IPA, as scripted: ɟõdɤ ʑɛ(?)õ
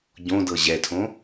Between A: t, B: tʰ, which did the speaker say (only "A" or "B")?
B